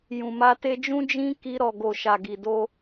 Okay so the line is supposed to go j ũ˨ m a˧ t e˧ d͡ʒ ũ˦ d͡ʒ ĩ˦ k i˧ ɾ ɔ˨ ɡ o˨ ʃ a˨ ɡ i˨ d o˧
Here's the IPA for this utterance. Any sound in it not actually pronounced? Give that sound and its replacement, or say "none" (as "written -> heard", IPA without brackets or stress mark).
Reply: none